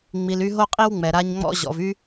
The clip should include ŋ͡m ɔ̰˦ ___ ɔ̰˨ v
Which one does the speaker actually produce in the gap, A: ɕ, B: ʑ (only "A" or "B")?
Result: B